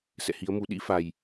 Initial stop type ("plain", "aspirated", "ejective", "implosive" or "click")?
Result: implosive